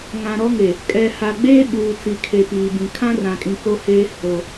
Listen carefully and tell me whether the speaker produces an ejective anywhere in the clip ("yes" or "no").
yes